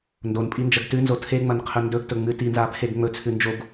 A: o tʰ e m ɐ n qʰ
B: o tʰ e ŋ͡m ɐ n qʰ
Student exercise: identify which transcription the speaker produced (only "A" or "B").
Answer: B